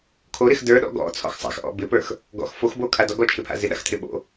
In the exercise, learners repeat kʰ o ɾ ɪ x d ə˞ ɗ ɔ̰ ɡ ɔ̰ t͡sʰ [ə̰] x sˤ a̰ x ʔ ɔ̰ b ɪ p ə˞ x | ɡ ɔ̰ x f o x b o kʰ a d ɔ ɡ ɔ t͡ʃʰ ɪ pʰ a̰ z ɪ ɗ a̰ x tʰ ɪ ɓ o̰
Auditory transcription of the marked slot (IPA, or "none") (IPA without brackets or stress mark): ɔ̰